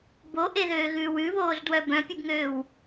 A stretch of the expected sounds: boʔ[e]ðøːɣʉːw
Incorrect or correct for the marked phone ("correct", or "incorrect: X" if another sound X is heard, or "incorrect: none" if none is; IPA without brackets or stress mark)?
correct